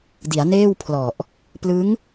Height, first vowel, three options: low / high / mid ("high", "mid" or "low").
high